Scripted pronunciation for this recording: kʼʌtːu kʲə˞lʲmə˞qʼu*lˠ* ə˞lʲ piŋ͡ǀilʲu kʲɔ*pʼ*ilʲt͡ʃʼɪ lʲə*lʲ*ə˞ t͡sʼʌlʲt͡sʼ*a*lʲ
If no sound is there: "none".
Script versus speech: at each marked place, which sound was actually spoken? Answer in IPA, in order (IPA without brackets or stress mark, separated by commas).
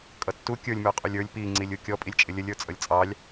lʲ, pʼ, lʲ, ɑ